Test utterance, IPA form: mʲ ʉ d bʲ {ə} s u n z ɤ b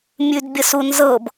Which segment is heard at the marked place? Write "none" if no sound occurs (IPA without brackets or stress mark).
ə